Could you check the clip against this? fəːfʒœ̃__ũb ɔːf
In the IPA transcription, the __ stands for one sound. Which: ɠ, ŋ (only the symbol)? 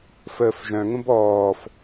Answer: ŋ